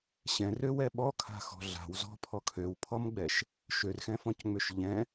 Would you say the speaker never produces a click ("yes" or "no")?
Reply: yes